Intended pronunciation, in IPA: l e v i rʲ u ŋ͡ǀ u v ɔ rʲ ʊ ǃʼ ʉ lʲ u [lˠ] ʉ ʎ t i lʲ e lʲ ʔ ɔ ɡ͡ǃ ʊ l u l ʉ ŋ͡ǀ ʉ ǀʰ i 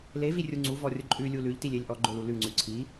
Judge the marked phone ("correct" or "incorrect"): incorrect